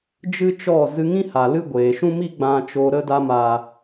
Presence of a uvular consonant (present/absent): absent